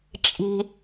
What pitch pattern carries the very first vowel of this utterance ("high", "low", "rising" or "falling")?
low